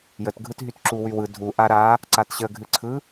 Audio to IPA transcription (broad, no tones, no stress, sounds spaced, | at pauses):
j ə t ɡʱ ɯ t ɦ y t ǁ u w y w ɯ dʱ u ʔ a ɾ a | ǀ a t ɕ ə ɡʱ ɨ ǀʰ ɯ